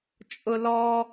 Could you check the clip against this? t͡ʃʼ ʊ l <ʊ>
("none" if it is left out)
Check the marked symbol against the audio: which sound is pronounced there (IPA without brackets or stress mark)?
ɔ